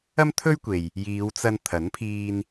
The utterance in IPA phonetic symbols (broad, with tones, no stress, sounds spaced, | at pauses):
ɐ˥ m t̪ʰ ɵ˥ ɥ kʷ e˨ j | j iː˨˧ w t͡s ɐ˧ n t̪ʰ ɐ˨˥ n pʰ iː˧ n